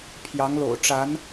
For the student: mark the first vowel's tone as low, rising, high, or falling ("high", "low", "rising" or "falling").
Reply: rising